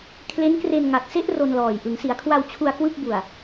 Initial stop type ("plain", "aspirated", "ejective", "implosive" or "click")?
aspirated